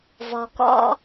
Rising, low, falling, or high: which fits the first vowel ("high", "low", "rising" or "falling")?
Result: low